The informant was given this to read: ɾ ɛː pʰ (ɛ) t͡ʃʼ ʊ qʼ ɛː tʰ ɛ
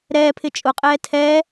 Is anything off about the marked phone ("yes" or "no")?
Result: yes